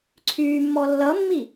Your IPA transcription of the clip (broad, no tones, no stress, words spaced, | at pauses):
ǀʰyːmːɔ lːʌmːi